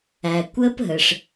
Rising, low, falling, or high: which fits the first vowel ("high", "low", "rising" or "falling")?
low